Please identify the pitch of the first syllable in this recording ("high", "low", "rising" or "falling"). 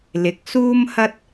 rising